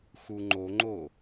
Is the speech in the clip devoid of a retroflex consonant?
yes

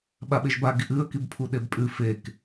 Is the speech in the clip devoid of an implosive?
no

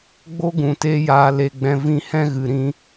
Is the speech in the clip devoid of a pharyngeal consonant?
yes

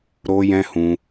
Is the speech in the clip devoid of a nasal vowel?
no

